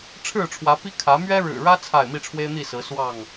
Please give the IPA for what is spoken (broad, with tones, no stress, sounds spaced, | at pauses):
ʈ͡ʂʰ ɻ̩˥˨ ʈ͡ʂʰ w ä˨˦ p i˦ kʰ ä˨˦ m ɥ ɛ˦ ɻ ɻ̩˨˩ ɻ ä˦ t͡sʰ a˥˨ ɪ̯ m i˥˨ ʈ͡ʂʰ w e˦ ɪ̯ n̪ i˥˨ s ɹ̩˨˦ s w ɑ˥˨ ŋ